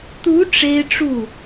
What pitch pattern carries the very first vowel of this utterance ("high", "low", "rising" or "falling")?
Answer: rising